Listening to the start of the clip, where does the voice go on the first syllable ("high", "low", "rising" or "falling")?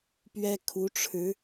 high